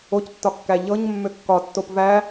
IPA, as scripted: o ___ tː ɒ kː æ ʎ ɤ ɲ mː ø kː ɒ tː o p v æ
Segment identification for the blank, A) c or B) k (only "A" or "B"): A